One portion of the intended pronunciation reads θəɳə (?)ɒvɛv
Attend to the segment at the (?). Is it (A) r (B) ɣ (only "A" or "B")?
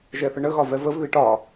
B